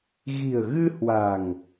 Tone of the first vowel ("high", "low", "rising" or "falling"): low